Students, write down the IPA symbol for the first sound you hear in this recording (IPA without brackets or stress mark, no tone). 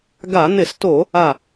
ɡ